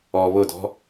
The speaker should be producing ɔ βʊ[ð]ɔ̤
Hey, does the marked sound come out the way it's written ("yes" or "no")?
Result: no